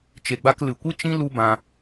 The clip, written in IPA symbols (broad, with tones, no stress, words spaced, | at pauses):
t͡ʃe˨ɡ͡ba˧klɨ˨ kʷɨ˦t͡ʃĩ˦ lu˦bã˧